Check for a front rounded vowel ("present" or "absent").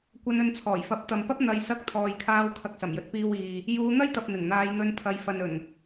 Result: absent